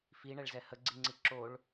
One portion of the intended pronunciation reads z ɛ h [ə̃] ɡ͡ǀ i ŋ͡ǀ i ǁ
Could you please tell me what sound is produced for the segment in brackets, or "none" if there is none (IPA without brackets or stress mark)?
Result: ə